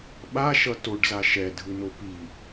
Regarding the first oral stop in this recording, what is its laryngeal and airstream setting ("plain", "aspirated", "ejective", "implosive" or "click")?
implosive